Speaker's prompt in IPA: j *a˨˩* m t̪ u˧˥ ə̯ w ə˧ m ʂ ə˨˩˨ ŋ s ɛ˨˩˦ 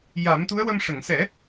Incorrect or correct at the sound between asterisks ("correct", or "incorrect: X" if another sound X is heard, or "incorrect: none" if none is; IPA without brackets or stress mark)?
incorrect: a˨˩˦